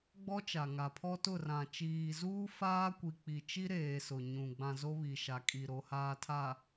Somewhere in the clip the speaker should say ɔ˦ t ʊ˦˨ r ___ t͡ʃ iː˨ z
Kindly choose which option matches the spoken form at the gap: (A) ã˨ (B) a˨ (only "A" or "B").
A